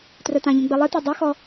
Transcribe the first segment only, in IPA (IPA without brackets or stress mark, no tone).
t